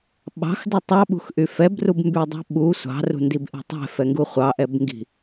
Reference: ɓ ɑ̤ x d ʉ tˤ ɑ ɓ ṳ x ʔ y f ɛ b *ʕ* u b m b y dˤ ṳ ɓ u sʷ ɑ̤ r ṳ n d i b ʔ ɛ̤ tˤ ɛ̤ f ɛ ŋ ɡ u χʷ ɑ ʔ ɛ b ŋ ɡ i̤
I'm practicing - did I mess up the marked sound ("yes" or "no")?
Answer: yes